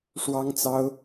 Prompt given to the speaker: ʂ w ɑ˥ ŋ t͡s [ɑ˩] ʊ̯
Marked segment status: incorrect: ɑ˥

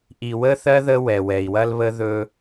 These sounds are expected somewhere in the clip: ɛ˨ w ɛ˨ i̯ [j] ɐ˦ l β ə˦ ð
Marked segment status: incorrect: w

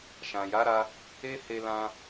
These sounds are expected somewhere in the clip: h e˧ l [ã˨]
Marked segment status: incorrect: ã˧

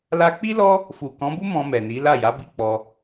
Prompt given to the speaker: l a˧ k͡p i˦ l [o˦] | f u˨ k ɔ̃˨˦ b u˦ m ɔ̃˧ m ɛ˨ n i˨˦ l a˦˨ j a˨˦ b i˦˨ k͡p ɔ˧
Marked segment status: incorrect: ɔ˦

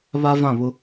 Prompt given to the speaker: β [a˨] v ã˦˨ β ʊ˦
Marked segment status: incorrect: a˦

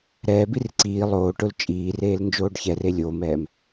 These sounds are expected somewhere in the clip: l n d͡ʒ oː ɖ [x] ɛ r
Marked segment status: incorrect: ç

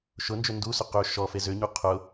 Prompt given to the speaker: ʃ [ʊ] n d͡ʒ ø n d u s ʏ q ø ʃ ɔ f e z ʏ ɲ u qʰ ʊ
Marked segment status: correct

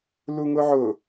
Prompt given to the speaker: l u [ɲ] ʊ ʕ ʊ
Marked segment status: incorrect: ŋ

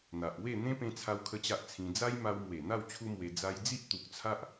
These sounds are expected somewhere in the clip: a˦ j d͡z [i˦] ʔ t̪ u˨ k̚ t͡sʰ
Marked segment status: correct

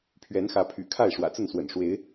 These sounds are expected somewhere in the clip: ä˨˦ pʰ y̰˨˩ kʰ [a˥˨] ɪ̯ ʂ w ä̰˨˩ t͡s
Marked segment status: correct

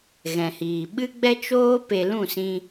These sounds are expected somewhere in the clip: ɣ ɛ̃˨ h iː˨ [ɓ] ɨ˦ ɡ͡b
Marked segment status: correct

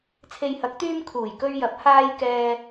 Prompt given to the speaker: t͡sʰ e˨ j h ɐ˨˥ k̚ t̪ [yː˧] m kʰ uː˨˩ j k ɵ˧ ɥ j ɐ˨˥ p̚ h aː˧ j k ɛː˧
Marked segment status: correct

